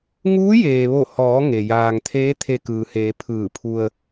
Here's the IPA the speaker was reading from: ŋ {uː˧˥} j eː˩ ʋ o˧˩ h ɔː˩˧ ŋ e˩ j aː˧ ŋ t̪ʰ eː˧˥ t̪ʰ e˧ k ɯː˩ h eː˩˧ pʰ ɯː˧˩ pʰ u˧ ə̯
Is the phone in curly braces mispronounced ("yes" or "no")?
no